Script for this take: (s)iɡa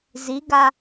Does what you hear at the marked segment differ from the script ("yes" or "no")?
yes